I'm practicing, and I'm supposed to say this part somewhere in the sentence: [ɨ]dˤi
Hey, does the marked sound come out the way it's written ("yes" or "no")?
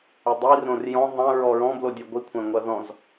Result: yes